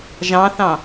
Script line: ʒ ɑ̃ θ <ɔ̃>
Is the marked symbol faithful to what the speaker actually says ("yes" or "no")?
no